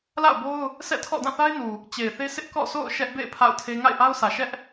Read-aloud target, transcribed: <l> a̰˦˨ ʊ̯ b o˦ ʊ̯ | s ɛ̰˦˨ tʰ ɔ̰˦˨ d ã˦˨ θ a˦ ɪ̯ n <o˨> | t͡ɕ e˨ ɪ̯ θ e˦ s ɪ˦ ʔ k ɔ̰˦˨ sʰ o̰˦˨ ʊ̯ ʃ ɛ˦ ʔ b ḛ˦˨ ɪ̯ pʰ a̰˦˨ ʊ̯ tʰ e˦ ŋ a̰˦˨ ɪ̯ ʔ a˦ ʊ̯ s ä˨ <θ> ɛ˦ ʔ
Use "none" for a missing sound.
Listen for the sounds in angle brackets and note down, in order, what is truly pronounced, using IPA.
l, u˨, ʃ

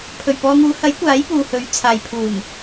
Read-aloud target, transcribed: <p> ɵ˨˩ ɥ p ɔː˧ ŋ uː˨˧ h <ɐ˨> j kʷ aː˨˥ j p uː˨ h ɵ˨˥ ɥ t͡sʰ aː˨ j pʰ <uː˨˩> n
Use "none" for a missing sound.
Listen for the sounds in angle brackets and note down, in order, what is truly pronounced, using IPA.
pʰ, ɐ˨˥, uː˨˩

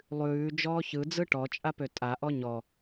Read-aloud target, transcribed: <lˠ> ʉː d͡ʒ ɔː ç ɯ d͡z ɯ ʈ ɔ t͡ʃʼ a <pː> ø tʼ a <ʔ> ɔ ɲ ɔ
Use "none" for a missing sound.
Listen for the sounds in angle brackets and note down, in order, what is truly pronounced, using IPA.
lˠ, p, ʔ

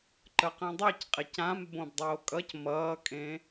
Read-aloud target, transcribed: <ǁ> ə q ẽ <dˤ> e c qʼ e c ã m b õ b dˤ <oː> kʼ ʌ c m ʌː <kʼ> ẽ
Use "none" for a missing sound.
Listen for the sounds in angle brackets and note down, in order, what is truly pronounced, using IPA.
ǃ, dˤ, oː, kʼ

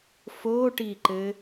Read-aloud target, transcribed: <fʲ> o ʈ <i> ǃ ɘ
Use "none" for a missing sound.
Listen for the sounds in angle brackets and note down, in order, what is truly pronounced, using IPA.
f, i

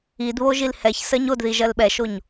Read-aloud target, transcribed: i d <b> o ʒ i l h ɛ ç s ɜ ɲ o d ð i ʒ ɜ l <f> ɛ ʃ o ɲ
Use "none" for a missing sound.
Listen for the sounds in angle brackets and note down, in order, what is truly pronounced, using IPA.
β, ɓ

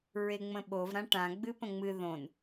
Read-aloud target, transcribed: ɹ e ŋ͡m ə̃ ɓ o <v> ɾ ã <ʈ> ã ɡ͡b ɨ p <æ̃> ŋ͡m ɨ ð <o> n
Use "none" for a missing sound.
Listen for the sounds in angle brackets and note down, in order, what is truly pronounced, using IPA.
v, ʈ, ə̃, õ

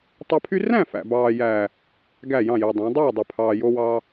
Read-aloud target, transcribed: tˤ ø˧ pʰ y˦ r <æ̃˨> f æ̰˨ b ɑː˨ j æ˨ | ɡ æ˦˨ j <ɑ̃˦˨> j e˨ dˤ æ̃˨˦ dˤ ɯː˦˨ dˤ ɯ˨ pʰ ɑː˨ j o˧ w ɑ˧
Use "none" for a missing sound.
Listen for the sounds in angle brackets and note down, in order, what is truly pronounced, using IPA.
æ̃˦˨, ɑ̃˦˨

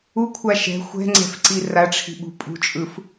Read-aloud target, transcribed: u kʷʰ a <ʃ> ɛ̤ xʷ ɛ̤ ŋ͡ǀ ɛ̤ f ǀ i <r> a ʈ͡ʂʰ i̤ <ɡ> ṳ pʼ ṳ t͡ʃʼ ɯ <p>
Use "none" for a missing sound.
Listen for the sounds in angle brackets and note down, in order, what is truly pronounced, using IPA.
ʃ, r, ɓ, f

